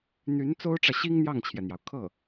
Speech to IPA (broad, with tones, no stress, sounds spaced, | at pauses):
n̪ y˧˥ n t͡s o˥ ʊ̯ ʈ͡ʂ ä˨ ɕ i˥ ŋ n̪ j ɑ˥˩ ŋ t͡ɕʰ j ɛ˩ n̪ j ɑ˩ ʊ̯ kʰ ɤ˥˩